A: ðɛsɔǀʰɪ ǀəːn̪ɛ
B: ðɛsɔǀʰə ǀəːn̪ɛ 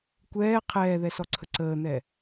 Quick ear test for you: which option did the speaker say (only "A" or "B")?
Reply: B